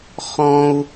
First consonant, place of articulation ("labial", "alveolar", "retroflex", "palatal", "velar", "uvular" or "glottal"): uvular